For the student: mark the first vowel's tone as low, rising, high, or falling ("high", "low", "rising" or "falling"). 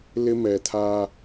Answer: high